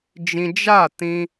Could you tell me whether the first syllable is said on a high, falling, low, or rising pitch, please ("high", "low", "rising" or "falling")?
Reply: high